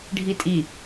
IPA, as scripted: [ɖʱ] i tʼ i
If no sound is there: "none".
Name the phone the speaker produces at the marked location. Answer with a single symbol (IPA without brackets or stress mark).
ɖʱ